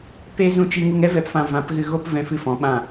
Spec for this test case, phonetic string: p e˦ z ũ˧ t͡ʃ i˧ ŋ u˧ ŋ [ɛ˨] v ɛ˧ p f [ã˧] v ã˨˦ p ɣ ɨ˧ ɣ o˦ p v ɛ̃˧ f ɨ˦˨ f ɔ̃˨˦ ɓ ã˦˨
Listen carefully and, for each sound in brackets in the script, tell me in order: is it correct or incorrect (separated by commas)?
incorrect, correct